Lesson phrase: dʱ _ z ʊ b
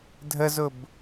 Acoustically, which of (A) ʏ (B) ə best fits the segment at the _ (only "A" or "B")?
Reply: B